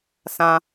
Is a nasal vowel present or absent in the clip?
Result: present